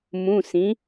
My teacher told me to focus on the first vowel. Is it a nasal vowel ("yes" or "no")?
yes